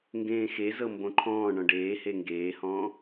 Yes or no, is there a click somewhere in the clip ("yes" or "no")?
yes